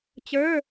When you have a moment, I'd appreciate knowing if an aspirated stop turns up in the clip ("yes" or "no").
no